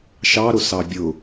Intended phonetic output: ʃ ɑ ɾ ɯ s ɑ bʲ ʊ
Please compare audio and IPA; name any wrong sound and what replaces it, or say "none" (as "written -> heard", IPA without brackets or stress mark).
ɯ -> ʊ